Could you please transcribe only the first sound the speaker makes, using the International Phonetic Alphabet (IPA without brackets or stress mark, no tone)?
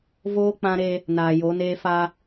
v